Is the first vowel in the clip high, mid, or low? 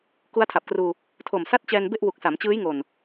high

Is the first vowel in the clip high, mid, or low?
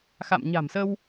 low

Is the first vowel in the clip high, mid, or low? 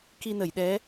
high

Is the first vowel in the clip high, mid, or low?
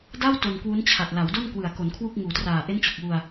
low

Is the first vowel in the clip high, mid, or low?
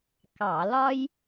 low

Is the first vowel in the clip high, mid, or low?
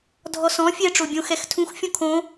mid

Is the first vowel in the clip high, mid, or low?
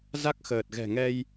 low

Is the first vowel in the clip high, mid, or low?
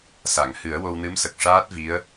low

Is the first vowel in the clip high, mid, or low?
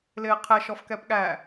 high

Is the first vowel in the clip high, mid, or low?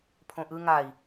mid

